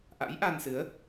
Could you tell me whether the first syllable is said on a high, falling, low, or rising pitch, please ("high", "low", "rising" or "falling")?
rising